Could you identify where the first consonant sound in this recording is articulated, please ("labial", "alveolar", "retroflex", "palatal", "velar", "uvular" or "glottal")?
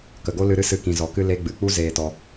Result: velar